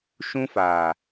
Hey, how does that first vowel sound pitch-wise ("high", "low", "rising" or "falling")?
high